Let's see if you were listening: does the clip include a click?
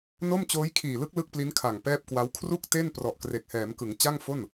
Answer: no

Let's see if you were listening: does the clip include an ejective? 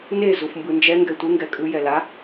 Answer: yes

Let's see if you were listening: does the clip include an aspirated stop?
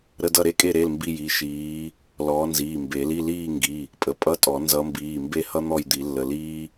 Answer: no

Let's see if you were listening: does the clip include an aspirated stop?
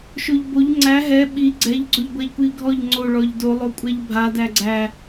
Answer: no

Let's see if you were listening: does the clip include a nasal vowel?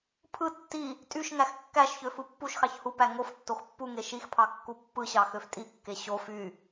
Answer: no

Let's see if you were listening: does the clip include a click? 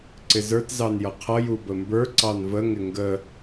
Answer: yes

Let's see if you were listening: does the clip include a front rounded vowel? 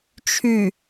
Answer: yes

